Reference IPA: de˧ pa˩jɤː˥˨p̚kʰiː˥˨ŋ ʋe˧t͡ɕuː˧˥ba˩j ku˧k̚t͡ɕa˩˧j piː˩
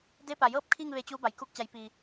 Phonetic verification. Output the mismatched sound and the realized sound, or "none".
none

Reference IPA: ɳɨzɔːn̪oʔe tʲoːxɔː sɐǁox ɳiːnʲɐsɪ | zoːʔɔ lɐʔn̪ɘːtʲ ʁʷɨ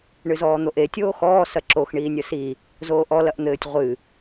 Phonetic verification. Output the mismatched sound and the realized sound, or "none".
ɪ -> i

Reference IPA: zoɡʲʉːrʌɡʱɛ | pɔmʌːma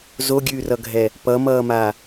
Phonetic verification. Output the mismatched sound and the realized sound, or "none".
ɔ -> ʌ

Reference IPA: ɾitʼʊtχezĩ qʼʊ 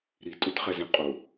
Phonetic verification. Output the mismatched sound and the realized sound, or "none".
e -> ɛ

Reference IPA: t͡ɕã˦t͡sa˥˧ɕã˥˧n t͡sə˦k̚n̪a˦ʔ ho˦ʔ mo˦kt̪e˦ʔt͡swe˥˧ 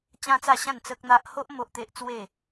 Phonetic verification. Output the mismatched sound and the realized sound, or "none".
k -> ʔ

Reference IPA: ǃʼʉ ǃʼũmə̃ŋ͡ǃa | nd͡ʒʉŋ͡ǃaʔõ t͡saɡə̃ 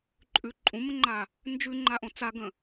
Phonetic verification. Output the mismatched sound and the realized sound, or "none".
none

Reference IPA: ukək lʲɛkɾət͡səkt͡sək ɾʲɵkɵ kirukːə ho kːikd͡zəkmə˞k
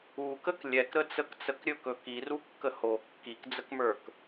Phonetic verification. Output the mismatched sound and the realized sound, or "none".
none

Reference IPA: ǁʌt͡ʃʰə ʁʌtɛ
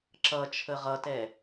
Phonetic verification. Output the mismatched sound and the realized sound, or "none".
none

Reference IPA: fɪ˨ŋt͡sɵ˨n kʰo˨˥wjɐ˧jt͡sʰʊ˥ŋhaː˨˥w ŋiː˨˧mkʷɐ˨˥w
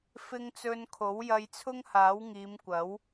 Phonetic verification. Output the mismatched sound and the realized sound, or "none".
none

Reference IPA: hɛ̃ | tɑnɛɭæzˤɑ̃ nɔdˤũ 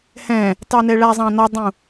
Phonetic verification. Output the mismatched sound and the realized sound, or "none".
none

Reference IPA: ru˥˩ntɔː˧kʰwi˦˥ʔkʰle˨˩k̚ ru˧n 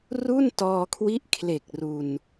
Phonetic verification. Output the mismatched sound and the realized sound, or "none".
none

